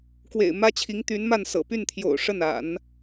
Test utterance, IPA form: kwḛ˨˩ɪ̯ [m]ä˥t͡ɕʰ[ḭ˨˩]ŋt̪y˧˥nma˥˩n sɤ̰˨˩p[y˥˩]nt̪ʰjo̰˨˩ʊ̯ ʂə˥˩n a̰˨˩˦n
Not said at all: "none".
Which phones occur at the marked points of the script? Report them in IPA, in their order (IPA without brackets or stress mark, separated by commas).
m, i˧˥, y˥˩